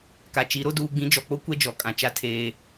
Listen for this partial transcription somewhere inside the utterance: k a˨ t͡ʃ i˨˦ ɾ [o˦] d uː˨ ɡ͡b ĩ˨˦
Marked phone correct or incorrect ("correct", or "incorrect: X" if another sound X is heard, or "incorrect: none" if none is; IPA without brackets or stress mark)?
correct